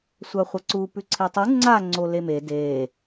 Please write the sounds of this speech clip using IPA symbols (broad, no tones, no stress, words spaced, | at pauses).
sʷaχʷɐǀu pʉǀʰetˤu ŋ͡ǀa ŋ͡ǀoleme de